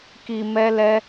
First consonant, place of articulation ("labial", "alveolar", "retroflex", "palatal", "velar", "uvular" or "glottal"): velar